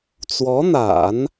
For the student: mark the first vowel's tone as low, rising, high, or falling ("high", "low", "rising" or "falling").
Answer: rising